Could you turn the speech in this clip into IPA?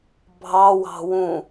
bʱ ɑ w ɑ̤ w ũ

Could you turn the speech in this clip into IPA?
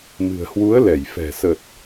m ɨ̤˨˩ ə̯ h w u˨˦ ə̯ l ɛ˧˩ j f ɛ̤˨˩ s ə˨˩ t̚

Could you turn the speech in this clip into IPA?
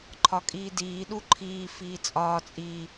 ǃʰ ɒ kʼ iː d iː ɗ u ǃʰ iː f iː t͡sʼ ɒː t͡sʼ i

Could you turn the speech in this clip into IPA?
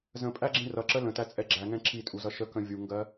z ə̃ pʼ æ ɡ͡ǁ ĩ r ʌ ǁ ə l ə̃ t æ t͡sʼ ɛ ɡ͡ǁ æ ŋ ɛ̃ ǁ i tʼ u z ʌ ʃ ə k ə̃ vʲ u ŋ ɡ ɜ

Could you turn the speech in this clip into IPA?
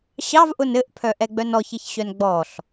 ɕ ɑ v ʔ ʊ n ɘ ʔ pʰ œ ʔ ɛ ɡ͡b œ n ɔ ç ɘ ç ɕ œ n ɡ͡b ɔ ɬ

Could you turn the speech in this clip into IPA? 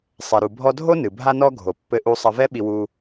sˤ ɛ˩ ɾ u˩ bʱ ɔ˧ dʱ o˥ n ɨ˩ bʱ a˧ n ɔ˧ ɡʱ o˩ pː ɘ˧ ʔ u˧ sˤ ɐ˧ v ɛ˥ ɓ i˧ w u˧

